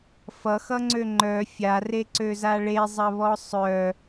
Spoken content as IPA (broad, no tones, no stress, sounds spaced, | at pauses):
f ʌ x ʌ ŋ͡ǀ ø ŋ͡ǃ œ fʲ a r e ǀ ø z a ɭ e zˤ ɐ β ɔ sˤ œ